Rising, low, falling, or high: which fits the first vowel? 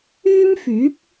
high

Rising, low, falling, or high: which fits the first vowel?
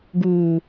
low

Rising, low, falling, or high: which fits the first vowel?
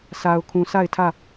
low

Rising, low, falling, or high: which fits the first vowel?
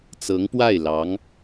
rising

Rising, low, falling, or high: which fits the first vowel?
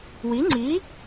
rising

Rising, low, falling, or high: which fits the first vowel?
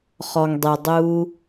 low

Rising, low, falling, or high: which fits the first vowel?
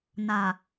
low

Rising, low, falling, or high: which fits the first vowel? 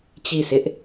falling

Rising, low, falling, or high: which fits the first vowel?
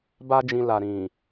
high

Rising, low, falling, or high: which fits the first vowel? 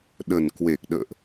low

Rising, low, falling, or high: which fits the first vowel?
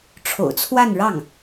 low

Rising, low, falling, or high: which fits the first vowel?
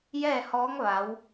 falling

